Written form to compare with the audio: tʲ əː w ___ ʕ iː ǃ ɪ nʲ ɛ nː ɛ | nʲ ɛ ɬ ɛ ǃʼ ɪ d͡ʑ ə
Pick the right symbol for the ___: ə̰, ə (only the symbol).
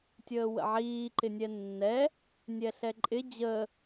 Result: ə̰